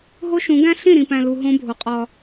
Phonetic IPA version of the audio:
ɦ o˦ ʃ ũ˨˦ ɡ æ̃˦ ɬ ĩ˦˨ ɾ ĩ˨ p æ̃˨ l u˨ ɦ õ˦ bʱ o˨ qʼ ɒ˦

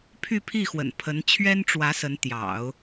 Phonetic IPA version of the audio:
pʰ y˥˧ pʰ i˥˩ x w ə̰˨˩ n pʰ ə˧˥ n t͡ɕʰ ɥ ɛ˥ n ʈ͡ʂ w ä˧˥ s ə˧˥ n t̪ j ɑ̰˨˩˦ ʊ̯

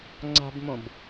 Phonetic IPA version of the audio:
ŋ͡ǀ a̤ b m õ b

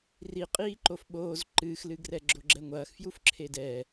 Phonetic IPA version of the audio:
r i qʼ iː ǃ o f ɓ oː z ǃ ɨː x l ɨ ɡ r ɛ ɡ͡ǁ o ɡ͡ǁ ɛ ŋʷ ɐː x f j u f ǁʰ e d ɛː

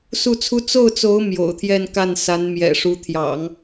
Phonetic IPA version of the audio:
s u˥˩ t͡sʰ u˥ t͡s o˥˩ ʊ̯ t͡s o˧˥ ʊ̯ m j o̰˨˩ ʊ̯ t̪ʰ j ɛ˥˧ n k a˥˩ n s a˧˥ n m j ɛ̰˨˩ ʂ u˧˥ t̪ʰ j ɑ̰˨˩˦ ŋ

